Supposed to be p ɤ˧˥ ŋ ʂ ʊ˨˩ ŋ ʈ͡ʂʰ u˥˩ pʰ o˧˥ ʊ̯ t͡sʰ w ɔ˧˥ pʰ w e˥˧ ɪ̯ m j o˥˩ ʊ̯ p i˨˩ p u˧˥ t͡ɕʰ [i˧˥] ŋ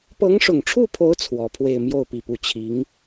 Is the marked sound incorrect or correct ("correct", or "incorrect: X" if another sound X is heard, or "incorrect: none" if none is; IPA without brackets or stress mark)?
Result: correct